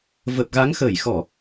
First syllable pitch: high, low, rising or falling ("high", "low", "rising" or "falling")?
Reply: low